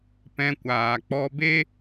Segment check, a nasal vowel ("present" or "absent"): present